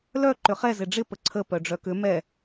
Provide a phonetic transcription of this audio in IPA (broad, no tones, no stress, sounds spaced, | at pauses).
l œ ǃ ʏ χ ɛ z ɪ ɖ͡ʐ ɪ p ə ǀʰ ə p œ ɖ͡ʐ œ k ʏ m ɛ